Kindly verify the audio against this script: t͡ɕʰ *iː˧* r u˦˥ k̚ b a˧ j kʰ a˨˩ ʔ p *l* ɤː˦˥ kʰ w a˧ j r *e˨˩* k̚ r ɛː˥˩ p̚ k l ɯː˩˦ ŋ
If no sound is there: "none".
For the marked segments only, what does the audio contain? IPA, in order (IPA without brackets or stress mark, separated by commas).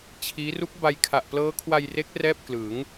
iː˦˥, l, e˦˥